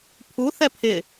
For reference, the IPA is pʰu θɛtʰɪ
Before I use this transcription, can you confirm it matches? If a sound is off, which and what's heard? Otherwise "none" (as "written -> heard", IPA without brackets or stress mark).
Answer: tʰ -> pʰ